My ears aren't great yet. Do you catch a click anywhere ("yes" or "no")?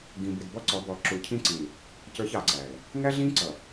yes